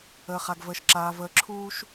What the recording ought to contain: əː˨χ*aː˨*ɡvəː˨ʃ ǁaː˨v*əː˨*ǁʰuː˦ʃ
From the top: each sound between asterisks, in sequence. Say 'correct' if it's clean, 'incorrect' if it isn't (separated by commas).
incorrect, correct